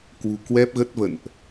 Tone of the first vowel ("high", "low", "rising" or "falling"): low